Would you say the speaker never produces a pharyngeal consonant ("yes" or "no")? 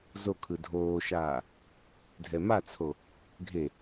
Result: yes